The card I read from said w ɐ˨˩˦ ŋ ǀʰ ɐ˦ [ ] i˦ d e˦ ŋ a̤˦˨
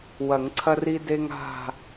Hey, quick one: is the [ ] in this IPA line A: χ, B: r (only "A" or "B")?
B